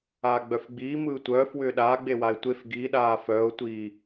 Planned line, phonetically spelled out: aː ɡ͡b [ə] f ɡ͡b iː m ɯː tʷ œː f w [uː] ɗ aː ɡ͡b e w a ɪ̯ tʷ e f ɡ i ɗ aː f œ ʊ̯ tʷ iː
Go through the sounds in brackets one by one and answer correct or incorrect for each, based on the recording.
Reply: incorrect, incorrect

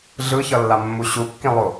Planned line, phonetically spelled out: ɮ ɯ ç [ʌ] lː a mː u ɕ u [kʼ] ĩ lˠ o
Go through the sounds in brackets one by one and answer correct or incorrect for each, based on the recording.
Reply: correct, incorrect

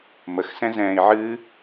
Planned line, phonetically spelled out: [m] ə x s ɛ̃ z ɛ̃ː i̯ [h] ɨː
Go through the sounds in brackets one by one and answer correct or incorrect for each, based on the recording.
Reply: correct, incorrect

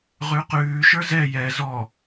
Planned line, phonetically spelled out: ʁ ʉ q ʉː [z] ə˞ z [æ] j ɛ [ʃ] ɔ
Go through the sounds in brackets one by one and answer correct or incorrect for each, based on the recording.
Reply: incorrect, incorrect, incorrect

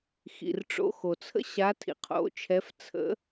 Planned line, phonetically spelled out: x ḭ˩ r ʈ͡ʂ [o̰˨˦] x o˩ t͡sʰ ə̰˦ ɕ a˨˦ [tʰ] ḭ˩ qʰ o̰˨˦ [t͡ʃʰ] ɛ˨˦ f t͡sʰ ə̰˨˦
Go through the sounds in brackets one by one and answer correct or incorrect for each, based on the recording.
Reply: correct, correct, correct

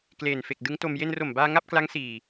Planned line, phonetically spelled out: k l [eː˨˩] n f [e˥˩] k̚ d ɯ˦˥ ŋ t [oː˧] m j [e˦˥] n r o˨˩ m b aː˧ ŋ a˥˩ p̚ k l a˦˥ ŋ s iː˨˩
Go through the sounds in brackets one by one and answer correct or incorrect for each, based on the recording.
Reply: correct, incorrect, incorrect, incorrect

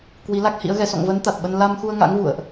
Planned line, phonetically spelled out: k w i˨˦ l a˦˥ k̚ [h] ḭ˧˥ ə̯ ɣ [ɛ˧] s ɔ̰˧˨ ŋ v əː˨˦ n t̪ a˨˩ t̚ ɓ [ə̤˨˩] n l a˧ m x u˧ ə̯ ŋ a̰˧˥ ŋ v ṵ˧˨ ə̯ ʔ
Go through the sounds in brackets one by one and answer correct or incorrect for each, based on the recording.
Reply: correct, correct, incorrect

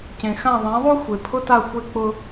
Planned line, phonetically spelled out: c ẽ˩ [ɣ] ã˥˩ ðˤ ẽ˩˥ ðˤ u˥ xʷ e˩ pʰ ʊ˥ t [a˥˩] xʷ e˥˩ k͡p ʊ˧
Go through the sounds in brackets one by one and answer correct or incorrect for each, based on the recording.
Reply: incorrect, correct

